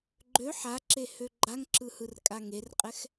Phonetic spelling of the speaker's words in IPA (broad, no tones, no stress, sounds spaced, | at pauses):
ɡ͡ǃ ø ħ a ǁ e h ø ɡ͡ǃ a ŋ ǁ ɯ h ɯ r kʼ a ŋ e r qʼ ɛ x